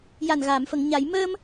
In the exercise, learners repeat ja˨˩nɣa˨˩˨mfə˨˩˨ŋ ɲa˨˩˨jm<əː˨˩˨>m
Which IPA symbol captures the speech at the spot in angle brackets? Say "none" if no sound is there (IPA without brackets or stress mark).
əː˧